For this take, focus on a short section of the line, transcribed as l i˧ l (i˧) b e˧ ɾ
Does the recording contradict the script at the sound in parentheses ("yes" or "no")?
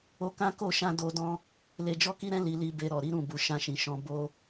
no